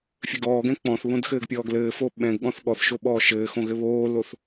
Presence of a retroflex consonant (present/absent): absent